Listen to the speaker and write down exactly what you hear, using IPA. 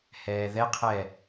h ɛː ð ɛ qʰ ɛː

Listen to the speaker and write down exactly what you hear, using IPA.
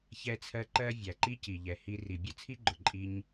ç ɛ˦ t͡sʰ ɜ˦ ǃ ɜ˦ vʲ æ˨ ǃ i˦ c i˨ ʎ ɛ˨ h i˧ r i˨ bʲ ʊ˦ t͡sʰ i˦ ɡ͡ǃ ʊ˨ ǃʼ i˦ ɲ

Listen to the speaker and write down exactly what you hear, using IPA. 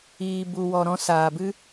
iː˨ b u˨ w ɔ˨ ɾ ɔ̃˧ s aː˨ b ɨ˦

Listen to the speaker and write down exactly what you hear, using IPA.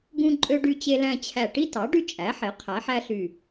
ɡ ũ˦ ǃʼ ø˦ ɖ y˦ t͡ɕ e˦ l æ̃˦ t͡ɕʰ æ˧˩ ʈ i˦ t ɑ˩˥ ɖ y˦ t͡ʃʼ æ˩˥ ħ e˩˥ qʰ æ˩˥ ħ æ˦ ɬ y˧˩

